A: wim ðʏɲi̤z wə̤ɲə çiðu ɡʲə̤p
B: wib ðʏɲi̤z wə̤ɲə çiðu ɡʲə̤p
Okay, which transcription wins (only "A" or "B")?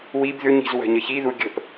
B